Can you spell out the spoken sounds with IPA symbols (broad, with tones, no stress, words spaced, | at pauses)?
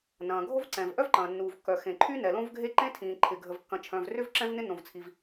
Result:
nɐ̃ː˩ɡʱo˥vǀɛ̃˩v ʔœ˥vǃɐ̃ː˩nːuː˩vkːœ˩ xẽ˩ǃʰy˥ nɛ˩lõ˥vɡʱe˥ ǃẽ˥tʰĩː˩ ǃʰɪ˩ ɡʱə˩vkːɐ̃˩ t͡ʃʰœ̃˩vrʏ˥v ǁɛ̃˥vnɪ˥nõ˩vt͡sʰi˩v